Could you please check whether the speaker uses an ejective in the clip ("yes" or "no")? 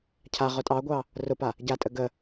yes